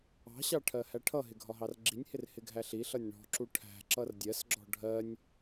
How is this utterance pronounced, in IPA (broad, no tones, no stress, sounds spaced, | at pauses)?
ɑ̤ ɕ ɑ ʈʰ ɜ h æ ʈʰ ʌ ɦ ɪ ɡʱ ɒ ɦ ɑ r ɡ͡ǁ i nʲ h ɪ r h ɪ ɡʱ æ ɬ i ɬ ʌ nʲ ɳ ɔ̤ ǁ u ʈʰ æ̤ ǁ ʌ r dʲ ɜ s ɡ͡ǁ ɔ̤ ɖʱ ɜ nʲ